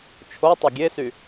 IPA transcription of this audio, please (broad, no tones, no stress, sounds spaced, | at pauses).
t͡ʃʰ o tˤ ø ɡʲ e s y